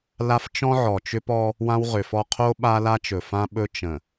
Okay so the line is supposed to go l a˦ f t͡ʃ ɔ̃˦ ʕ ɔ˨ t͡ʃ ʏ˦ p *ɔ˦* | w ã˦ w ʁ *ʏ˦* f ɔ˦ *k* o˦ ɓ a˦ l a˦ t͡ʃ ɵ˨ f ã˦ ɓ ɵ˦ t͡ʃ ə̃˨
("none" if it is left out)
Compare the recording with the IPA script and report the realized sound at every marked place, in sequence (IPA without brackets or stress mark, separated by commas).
ɔ˦, ʏ˨, qʰ